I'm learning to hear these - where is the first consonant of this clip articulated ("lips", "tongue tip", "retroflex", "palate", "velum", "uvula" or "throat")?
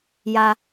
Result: palate